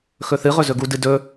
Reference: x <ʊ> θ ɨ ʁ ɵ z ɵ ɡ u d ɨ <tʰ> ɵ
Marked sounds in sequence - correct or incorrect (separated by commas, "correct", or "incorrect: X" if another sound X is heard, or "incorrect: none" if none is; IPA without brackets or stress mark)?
incorrect: ɵ, incorrect: d